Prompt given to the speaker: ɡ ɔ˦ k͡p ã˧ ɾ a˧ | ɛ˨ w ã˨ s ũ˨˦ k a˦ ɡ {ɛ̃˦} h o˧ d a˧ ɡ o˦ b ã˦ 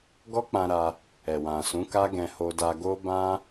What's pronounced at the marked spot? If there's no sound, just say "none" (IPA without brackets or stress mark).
ɛ̃˧